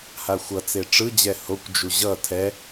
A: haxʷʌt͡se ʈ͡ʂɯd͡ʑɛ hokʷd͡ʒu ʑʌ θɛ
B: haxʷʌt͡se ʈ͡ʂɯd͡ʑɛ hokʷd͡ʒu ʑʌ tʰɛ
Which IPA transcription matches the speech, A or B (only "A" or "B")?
B